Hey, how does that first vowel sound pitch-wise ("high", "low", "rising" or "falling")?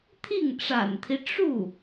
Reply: falling